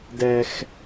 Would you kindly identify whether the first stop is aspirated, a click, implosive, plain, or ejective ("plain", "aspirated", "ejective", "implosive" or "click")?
plain